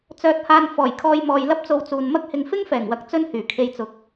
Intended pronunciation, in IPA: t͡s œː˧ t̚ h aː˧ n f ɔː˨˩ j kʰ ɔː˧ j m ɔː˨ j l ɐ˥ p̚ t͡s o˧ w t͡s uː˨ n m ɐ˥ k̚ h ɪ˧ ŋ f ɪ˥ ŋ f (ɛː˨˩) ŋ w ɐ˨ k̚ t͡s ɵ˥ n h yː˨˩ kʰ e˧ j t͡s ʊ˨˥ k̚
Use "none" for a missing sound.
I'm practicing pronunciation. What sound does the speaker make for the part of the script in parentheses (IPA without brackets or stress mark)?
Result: ɛː˨˩